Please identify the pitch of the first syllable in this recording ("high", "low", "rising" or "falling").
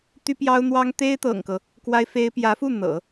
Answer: high